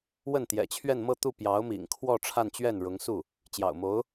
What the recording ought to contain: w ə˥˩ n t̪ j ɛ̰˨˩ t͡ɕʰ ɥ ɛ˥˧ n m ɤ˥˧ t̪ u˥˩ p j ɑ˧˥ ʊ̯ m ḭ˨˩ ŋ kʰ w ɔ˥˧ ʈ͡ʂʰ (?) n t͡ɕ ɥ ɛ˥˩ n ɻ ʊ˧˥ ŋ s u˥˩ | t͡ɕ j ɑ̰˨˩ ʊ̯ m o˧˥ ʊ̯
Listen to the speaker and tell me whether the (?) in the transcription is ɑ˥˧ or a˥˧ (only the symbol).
a˥˧